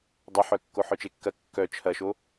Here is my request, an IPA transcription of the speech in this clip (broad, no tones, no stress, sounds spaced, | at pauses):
dˤ ɐ ħ œ kː o ħ œ t͡ʃ e kː ɐ kː œ t͡ʃʰ ɐ ʃ o